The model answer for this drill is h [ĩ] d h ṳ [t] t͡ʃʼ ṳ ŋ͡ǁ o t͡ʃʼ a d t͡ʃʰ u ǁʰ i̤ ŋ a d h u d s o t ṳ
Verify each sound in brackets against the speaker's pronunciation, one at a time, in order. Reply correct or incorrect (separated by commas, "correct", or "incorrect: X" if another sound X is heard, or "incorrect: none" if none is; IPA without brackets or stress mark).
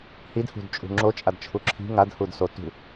incorrect: i, incorrect: d